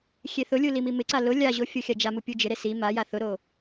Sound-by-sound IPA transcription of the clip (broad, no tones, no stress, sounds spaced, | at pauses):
xʲ e θ ʊ lʲ u l i m i m ɪ ǀ a l ʊ lʲ a ʑ o fʲ o xʲ a d͡ʒ a m u pʲ u d͡ʒ ɪ ɾ e s i m a j a θ ʊ ɾ o